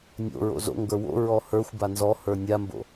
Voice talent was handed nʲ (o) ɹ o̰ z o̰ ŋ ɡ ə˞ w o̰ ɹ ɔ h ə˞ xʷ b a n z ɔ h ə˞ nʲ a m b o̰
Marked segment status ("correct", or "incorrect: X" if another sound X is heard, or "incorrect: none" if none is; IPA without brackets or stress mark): incorrect: o̰